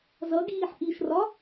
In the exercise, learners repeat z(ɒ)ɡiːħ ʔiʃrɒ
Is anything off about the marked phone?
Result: yes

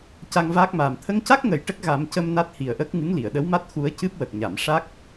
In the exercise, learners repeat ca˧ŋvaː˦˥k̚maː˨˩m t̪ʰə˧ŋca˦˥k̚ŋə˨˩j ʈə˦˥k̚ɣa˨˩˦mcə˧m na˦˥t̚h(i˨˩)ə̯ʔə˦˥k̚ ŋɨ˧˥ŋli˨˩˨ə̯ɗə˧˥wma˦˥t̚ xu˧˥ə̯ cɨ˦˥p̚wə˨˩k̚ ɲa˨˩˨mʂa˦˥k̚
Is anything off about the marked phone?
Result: no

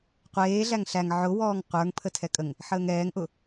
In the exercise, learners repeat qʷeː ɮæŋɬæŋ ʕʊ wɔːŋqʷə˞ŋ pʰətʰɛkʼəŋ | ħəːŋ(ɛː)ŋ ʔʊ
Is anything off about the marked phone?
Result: no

